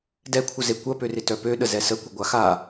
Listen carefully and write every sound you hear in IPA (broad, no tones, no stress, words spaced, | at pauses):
dɛkʷʰəze kʷɐpørɪ tœpøɗə zɛsəkʷɪ ɡʷaxa